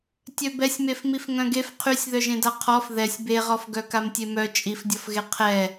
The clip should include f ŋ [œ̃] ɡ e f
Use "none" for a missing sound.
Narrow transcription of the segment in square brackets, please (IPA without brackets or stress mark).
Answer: œ̃